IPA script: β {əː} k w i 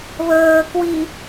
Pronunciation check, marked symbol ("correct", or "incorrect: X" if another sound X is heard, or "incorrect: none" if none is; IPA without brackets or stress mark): correct